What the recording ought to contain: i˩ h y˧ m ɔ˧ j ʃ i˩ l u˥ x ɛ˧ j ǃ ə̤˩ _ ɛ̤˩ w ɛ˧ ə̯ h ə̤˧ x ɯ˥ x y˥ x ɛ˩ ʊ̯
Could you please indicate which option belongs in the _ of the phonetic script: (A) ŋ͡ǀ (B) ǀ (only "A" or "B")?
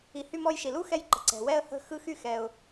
B